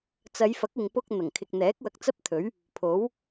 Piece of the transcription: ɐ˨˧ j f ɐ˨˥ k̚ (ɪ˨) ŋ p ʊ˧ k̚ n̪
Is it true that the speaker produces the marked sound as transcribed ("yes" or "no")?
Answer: yes